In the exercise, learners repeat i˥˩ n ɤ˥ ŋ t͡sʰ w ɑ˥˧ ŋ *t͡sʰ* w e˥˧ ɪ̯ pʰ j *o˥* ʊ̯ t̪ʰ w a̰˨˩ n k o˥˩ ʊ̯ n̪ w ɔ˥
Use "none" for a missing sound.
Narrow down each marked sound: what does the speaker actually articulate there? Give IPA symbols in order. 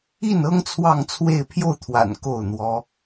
t͡sʰ, o˥˩

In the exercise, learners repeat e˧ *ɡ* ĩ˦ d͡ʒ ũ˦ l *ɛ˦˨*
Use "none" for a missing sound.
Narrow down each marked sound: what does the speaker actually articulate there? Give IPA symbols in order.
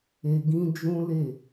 ɡ, e˦˨

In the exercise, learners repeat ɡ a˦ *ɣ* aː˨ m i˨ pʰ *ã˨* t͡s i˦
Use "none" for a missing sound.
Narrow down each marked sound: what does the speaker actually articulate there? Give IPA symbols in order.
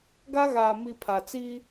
ɣ, a˨

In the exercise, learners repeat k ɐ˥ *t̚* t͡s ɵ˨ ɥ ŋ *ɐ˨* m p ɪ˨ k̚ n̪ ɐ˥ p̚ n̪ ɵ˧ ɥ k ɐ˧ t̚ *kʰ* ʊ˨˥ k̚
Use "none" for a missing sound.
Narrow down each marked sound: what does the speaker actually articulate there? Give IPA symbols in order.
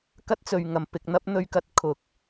t̚, ɐ˨˩, kʰ

